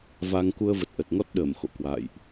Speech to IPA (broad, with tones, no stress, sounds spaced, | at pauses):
v a˧ ŋ k u˧ ə̯ v ə˨˩ t̚ ʔ ə˨˩ t̚ ŋ ɔ˦˥ t̚ ɗ əː˧˩ m x o̰˧˨ k w a̰˧˨ j ʔ